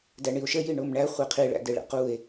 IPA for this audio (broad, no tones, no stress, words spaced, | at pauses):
dæɳio̯ʃə jiɳomɳæ χʷeqʰi ɭæ̰deɭa̰que̯